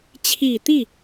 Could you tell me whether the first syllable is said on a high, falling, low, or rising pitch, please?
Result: low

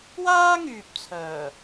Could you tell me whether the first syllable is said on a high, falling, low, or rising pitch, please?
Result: high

